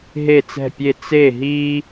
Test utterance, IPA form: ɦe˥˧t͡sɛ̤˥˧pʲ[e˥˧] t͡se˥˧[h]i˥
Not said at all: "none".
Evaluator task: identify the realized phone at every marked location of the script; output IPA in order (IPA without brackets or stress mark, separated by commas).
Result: e˥˧, ɦ